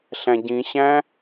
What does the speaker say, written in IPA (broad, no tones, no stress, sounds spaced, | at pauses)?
ɬ æ̃ ɟ ĩ ɕ æ̃